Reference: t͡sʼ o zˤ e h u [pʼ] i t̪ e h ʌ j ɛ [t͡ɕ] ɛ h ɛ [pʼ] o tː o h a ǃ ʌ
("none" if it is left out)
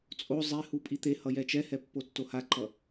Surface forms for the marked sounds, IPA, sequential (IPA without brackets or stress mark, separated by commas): pʼ, t͡ʃ, pː